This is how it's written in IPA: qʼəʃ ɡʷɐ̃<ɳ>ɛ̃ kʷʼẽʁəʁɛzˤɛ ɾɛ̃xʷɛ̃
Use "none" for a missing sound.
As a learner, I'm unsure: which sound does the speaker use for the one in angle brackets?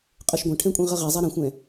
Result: ʈʰ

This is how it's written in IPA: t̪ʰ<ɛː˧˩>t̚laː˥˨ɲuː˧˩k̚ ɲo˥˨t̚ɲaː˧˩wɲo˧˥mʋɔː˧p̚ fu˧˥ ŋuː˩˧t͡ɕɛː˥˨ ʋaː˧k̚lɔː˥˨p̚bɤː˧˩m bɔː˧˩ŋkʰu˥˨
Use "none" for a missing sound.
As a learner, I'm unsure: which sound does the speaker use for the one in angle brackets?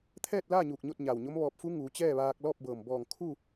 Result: ɛː˥˨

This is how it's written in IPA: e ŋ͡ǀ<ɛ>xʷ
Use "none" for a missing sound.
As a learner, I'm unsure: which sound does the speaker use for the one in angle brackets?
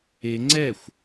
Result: ɛ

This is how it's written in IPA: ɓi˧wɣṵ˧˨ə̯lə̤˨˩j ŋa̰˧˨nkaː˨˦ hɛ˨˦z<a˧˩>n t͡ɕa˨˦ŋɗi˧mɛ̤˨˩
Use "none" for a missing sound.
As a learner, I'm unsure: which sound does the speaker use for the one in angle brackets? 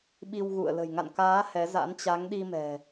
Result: a̰˧˥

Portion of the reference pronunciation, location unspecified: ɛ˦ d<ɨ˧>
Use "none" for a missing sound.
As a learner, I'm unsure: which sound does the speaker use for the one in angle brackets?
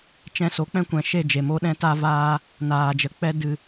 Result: ɨ˧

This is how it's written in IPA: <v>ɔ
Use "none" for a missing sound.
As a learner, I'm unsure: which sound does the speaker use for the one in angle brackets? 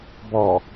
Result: b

